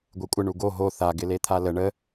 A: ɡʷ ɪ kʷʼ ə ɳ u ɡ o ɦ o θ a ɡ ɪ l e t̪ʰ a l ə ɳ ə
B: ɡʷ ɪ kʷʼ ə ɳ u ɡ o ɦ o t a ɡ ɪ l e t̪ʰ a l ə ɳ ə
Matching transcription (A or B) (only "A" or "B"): A